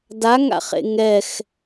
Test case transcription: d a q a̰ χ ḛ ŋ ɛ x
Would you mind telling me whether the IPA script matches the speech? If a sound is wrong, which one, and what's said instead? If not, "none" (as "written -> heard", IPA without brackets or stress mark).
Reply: q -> ŋ